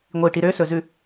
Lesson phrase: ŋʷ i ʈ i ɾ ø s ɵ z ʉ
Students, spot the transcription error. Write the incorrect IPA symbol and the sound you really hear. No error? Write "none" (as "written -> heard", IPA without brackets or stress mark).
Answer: none